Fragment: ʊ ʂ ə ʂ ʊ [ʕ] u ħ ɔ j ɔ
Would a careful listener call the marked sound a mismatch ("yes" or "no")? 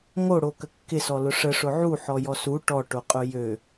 no